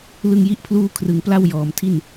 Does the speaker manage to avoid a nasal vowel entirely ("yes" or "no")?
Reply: yes